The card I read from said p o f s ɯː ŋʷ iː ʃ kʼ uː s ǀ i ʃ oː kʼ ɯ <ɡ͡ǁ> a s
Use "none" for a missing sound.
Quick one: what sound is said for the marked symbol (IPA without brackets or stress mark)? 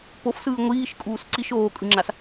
ŋ͡ǁ